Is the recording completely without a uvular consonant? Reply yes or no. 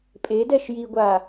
yes